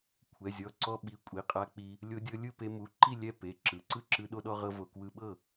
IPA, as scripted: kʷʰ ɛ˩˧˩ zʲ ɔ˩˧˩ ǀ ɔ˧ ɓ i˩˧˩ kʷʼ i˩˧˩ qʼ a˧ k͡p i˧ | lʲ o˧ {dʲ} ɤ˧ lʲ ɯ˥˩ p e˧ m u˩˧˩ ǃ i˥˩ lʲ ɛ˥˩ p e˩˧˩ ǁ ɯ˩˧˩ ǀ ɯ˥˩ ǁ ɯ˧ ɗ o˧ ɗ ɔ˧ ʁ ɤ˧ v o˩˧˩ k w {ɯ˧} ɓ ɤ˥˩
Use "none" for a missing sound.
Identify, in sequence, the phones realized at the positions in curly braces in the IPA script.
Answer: dʲ, ɯ˧

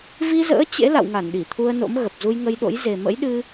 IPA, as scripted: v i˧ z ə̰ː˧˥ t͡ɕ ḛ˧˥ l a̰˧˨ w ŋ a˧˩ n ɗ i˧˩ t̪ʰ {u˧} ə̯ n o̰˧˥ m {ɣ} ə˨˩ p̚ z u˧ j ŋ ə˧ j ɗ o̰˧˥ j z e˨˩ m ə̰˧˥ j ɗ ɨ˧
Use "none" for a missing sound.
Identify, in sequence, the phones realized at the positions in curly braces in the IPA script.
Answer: u˧, ɣ

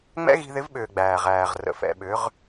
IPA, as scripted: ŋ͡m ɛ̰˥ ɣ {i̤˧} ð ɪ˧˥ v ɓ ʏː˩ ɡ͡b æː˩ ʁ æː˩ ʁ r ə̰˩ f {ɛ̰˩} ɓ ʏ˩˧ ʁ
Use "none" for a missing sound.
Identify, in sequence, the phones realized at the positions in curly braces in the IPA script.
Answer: i̤˧, ɛ̰˩

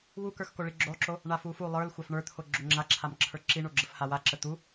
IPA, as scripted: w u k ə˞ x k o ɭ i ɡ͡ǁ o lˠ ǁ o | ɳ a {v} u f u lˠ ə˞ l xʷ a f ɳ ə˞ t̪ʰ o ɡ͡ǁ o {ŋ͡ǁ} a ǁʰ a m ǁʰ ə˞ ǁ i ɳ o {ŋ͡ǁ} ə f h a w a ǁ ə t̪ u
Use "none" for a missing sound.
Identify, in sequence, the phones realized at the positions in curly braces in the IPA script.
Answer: f, ŋ͡ǁ, ɡ͡ǁ

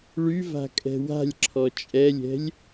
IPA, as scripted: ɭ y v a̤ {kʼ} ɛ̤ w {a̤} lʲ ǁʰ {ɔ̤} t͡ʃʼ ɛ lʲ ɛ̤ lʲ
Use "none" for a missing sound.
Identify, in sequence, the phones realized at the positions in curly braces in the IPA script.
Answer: kʼ, a̤, ɔ

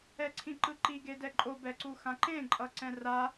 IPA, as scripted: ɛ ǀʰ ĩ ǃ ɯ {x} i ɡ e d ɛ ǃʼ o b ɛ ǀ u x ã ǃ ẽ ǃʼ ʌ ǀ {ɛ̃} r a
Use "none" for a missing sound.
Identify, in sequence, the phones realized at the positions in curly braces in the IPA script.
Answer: ǃ, ɛ̃

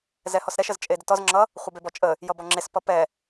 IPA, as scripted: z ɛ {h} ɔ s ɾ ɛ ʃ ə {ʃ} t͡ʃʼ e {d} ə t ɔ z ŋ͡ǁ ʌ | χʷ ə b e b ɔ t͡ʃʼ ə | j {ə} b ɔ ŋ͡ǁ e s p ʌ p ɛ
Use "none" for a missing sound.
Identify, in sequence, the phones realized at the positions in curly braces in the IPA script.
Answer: h, z, d, ʌ

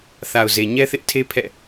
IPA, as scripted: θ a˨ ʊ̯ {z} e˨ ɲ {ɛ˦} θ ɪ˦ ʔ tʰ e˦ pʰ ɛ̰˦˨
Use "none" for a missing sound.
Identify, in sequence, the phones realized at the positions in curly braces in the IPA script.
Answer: z, ɛ˦

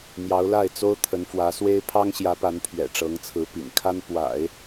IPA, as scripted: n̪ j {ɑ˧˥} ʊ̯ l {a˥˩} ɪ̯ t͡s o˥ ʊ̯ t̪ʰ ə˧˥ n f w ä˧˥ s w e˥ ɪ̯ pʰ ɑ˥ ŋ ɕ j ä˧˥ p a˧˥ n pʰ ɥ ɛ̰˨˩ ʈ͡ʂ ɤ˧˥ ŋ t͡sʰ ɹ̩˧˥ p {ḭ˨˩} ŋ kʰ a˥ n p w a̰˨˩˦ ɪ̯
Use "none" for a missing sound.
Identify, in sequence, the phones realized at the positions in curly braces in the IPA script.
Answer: ɑ˧˥, a˥˩, ḭ˨˩

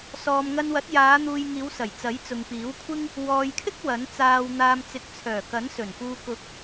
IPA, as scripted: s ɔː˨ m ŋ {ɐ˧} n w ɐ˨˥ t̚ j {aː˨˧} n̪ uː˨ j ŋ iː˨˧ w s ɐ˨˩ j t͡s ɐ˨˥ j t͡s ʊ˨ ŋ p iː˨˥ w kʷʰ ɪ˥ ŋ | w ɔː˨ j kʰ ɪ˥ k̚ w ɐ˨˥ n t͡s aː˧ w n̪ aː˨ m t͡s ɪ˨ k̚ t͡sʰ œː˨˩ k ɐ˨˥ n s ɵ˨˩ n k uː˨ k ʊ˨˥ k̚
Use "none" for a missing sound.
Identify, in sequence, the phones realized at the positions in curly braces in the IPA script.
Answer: ɐ˧, aː˨˧

